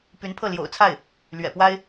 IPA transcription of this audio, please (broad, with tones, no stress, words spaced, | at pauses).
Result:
py˧˥npʰɤ˥˩ljo̰˨˩ʊ̯t͡sʰa˥˩ɪ̯ | lɥɛ̰˨˩pwa˥ɪ̯